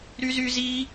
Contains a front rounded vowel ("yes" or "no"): yes